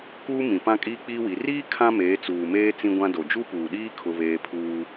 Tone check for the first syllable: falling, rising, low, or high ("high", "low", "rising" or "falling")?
high